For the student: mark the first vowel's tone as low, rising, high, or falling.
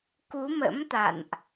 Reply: rising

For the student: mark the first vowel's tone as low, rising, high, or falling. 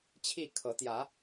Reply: falling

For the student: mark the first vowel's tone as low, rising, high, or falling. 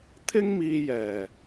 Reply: high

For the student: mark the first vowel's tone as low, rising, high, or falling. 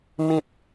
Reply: low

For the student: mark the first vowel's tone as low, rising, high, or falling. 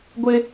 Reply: high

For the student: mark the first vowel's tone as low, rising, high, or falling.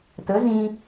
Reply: rising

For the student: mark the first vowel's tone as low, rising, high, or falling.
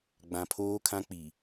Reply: low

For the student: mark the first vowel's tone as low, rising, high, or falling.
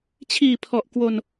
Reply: low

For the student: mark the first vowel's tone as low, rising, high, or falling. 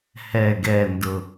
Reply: low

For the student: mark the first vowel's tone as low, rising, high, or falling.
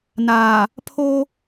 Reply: low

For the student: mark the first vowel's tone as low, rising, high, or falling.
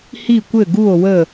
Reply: falling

